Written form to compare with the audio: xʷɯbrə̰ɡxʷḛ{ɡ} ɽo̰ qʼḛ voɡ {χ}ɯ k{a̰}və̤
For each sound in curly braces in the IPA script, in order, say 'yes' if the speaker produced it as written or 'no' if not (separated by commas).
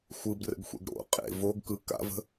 yes, no, yes